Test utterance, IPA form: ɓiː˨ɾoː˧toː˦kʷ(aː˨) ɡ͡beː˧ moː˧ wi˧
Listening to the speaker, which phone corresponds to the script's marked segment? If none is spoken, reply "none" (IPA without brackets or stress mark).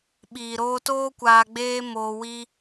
aː˧